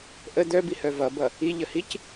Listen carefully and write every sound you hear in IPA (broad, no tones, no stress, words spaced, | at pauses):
ʔə d̪œbihœ vʌbʌ | iʎəhic